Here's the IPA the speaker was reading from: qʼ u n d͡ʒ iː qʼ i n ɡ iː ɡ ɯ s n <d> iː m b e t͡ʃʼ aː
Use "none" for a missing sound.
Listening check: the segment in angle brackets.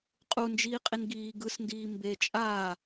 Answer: d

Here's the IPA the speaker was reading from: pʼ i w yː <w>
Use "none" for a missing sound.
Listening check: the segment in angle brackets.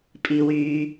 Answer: none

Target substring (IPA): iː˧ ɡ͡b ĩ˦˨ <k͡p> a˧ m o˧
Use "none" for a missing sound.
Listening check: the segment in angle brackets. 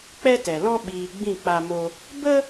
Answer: k͡p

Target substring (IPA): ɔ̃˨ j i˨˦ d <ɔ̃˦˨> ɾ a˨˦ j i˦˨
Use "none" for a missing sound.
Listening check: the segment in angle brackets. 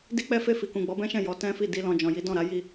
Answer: ɔ̃˦˨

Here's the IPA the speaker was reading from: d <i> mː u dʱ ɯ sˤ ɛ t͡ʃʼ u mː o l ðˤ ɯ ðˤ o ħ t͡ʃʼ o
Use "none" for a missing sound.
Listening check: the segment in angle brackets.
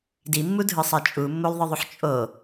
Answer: i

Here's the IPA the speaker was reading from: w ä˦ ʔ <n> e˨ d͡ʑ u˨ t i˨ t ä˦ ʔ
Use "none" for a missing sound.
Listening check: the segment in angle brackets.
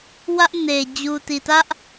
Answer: n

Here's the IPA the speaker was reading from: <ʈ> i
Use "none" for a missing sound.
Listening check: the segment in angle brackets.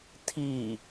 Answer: tʰ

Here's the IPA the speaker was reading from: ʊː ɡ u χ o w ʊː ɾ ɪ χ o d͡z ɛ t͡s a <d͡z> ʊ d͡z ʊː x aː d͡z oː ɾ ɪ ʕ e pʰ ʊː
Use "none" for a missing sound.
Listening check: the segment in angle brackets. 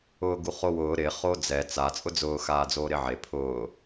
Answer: t͡sʼ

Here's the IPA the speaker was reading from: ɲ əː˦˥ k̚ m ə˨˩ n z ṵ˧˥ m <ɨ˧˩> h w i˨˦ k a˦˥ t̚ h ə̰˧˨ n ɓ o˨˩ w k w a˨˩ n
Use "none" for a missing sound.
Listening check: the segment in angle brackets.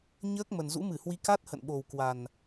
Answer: ɨ˧˩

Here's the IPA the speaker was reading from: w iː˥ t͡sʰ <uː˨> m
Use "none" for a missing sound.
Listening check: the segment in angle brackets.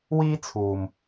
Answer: uː˨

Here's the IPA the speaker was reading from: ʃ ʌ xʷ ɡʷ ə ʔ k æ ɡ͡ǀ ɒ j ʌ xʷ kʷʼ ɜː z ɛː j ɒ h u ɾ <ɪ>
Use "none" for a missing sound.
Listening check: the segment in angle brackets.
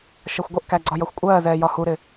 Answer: ɪ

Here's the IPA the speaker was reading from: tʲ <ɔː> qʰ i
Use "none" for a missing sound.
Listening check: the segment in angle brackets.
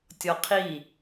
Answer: ɔ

